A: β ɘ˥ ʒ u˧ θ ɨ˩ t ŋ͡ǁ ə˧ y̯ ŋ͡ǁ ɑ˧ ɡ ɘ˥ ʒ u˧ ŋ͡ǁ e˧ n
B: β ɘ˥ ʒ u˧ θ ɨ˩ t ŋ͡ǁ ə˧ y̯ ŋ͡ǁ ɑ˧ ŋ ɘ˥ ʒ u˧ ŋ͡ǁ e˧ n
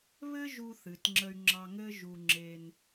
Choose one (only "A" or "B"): B